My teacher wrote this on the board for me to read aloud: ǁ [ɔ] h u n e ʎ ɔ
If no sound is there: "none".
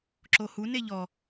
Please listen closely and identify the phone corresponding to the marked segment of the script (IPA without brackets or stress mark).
o